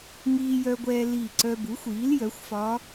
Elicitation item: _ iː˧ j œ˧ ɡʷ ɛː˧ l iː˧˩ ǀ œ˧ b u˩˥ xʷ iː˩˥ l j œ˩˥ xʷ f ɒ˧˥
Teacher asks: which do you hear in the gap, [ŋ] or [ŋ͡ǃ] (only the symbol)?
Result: ŋ